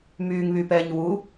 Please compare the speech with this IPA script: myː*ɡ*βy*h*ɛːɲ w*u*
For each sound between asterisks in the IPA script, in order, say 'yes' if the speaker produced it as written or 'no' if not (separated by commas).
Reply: no, no, yes